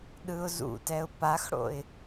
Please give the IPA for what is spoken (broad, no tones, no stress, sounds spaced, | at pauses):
ɗ ɯ ʊ̯ z ṵ t ɛ ʊ̯ p a x ɽ o̰ ɪ̯